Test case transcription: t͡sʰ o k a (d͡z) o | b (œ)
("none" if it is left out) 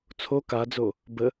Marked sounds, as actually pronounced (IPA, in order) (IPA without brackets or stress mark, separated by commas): d͡z, ə